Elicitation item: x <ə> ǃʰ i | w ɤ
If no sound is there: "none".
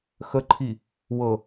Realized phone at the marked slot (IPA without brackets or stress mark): ə